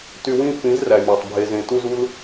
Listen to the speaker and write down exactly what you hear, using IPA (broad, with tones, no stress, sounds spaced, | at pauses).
t y˧ w ĩ˦˨ f ĩ˨˦ z r æ˨ mʲ ɑ˨ tˤ bʱ e˧ z ẽ˧ t u˦ z u˦ l